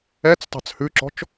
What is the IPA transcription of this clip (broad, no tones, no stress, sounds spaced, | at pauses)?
ɛ t͡s tˤ ɑ̤ t͡s h ʉ ǁ ɔ̤ t͡ʃ